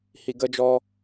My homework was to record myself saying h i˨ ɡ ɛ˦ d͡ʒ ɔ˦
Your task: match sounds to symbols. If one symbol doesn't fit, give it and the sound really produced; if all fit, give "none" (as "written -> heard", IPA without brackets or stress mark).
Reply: ɛ˦ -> ə˦